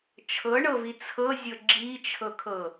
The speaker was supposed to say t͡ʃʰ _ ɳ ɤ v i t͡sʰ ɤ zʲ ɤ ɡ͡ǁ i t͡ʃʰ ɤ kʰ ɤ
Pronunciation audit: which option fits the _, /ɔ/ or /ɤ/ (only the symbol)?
ɤ